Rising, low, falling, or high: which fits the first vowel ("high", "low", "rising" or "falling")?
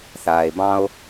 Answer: low